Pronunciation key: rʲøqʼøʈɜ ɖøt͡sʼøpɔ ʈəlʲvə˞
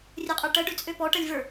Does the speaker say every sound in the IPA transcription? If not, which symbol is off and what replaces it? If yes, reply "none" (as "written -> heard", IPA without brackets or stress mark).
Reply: none